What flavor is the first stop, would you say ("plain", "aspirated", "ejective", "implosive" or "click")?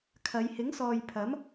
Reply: aspirated